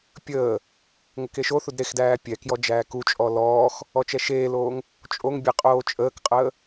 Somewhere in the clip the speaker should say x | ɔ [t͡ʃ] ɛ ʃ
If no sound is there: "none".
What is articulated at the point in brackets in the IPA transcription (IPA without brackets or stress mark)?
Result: t͡ʃ